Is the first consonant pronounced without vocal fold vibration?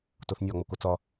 yes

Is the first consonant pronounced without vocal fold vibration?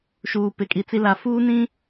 yes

